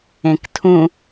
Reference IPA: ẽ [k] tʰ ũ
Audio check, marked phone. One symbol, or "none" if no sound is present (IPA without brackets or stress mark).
k